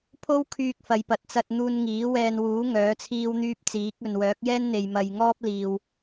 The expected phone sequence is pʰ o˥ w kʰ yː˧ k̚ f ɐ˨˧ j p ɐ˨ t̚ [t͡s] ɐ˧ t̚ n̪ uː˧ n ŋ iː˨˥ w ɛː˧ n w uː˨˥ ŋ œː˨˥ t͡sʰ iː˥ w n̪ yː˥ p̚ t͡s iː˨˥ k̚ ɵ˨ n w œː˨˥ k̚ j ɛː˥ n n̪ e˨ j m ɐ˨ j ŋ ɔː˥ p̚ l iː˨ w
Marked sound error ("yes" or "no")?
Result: no